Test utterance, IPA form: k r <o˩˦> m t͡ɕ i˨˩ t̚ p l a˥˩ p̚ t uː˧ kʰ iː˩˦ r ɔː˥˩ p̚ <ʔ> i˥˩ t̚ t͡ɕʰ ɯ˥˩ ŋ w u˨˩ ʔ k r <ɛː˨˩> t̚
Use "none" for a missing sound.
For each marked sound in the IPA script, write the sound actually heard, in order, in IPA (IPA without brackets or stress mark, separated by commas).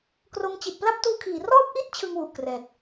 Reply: o˧, ʔ, ɛː˨˩